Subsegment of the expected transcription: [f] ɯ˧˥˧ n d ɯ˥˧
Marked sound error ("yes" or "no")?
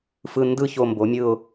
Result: no